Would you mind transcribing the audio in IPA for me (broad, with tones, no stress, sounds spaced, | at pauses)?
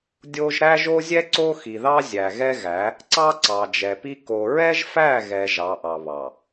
dʲ o˦ ʒ ɾ æ˦ ʒ o˦ zʲ ɛ˦ ǀ o˦ x i˨ ð ɑ˦ zʲ æ˨ ɣ ɛ˦ ɣ æ˨˦ | ǀ ɑ˦ ǀ ɑ˨ d͡ʒ ɛ˨ p i˦ k o˨ ɹ ɛ˦ ʒ f æ˦˨ ɣ ɛ˨ ʒ ɑ˨˦ ʔ ɑ˨ β ɑ˨